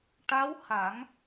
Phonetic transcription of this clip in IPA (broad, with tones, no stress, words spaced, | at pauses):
ʈa˧˥w ha˨˩˦ŋ